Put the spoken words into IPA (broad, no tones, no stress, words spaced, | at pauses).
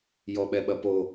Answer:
jɔɓɛɓɐpo